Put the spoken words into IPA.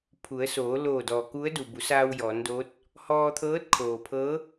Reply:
pʰ u˩˧ ə̯ s oː˩˧ l oː˧˩ d ɔː˩ k u˧˥ ə̯ d u˩ b u˩˧ s aː˧ w j ɔː˩˧ n d oː˧˥ t̚ | h ɔː˧ t̪ʰ ɤː˧˥ t̚ kʰ oː˩ pʰ ɤː˧˥

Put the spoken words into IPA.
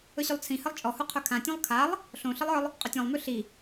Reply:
ɵ ɕ ʉ lˠ t͡sʰ ĩ h ɘ lˠ t͡ʃʼ ɔ h u qʰ ɵ kʰ ã tʲ õ lˠ kʰ a lˠ | ɬ õ ɬ ɘ lˠ ə˞ lˠ | qʼ ɵ tʲ ɔ̃ lˠ m ʉ ɬ i

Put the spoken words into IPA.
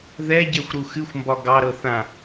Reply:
ð ɛ ɟ ɛ xʷ ɾ u x ɨ xʷ m b ɒ ɡ ɑ ɾ ɤ θ ã

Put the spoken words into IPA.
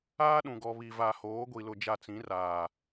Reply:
aː˦ ɗ ũ˨ ɡ ɔ˨ β i˨ v a˨ h oː˨˦ ɡʷ i˨ l ʊ˨ d͡ʒ a˨ t͡s ĩ˨˦ r aː˨

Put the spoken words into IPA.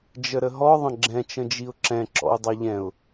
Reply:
d͡ʒ ə ɾ ə ɦ ɔ ðˤ ə̃ ɡ͡ǁ ɛ̃ t͡ʃ ə̃ d͡ʒ i ʊ̯ ǁ ɛ̃ ǁ ɔ̰ ʊ̯ dˤ ɑ ʎ ɛ̃ ʊ̯

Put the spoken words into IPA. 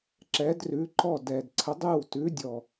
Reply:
ǁ ɛ˨˥ d r ʉ˨˥ ǃ ɔ˥˩ d ɛ˨˩ d ǀʰ ə˨˥ dˤ ʉ˥˩ w t ʉ˨˥ dʲ ɔ˨˩

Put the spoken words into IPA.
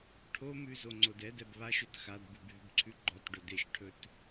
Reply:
ʈʰ o m ʉ z o ŋ͡ǀ o d ɛ d ɛ b β a ʃ ɵ t x a d b ʉ b β y b ǀʰ ʉ ɡ͡ǃ ɔ t ɖ ɵ d e ʃ ʈʰ ɵ t

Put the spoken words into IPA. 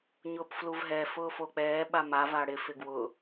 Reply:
ɲ ʊː p f l u v ɦ ɛ f ʊː f o k͡p ɛː ɓ a m a v a ɽ ɪ f ɪ ɡ w ʊ

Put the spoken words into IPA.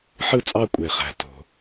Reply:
ħ ɯ˦˨ t͡sʼ ɑ˦˨ kʷʼ e˩ χ æ̤˩ t o̤˩

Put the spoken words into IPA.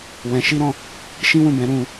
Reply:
w ɛ̃˧ ʃ i˦ ɾ ɔ̃˦˨ | ʃ ĩ˦ w ũ˦˨ b ɛ̃˨˦ ɾ ũ˧

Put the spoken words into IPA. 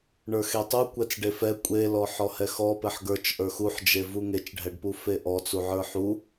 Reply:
ɳ ə˞ x e tˤ u kʷ ɛ t͡s ɖ e f ɛ kʷʼ e l ɔ ħ ɔ h ɛ x ɔ p ɛ ħ ɡ ə˞ t͡ʃ ʔ ə˞ x u ħ d͡ʒ e v u ŋ e t͡ʃ ɖʱ ɛ ɖ p u f e ʔ ɔ t͡s u ʕ ə˞ ħ u

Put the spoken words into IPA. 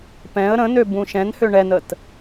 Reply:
p ɛ̃ ə̯ ɾ ə̃ n ø b ũ ʃ ɛ̃ n h ø ɳ ɛ n ə t

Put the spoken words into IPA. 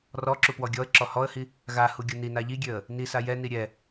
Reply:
r ɔ ǁ u p w ɔ ɡʲ ɔ ə̯ ǁ ɔ h ɔ ə̯ h i | ɣ a h u ɡʲ u n i n a ʎ i ɡʲ ø ə̯ | n i s a j ɛ n i ɾʲ ɛ

